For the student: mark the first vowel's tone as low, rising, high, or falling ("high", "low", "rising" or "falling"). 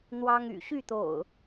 high